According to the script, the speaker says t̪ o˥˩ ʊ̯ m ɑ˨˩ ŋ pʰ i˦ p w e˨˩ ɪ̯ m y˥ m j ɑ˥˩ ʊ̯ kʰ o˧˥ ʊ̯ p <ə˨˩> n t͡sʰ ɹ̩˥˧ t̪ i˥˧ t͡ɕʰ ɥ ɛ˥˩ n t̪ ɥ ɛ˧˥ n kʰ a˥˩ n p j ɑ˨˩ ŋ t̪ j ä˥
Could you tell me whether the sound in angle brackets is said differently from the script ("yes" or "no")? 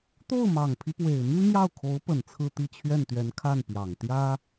no